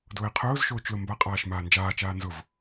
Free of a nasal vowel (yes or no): yes